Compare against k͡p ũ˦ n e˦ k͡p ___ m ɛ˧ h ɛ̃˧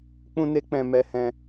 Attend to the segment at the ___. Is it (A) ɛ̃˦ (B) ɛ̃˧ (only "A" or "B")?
B